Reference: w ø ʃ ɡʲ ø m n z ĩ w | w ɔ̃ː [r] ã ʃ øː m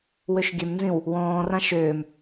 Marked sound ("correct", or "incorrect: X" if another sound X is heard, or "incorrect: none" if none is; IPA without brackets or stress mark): correct